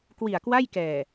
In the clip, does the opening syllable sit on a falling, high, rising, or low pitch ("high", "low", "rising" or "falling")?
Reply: low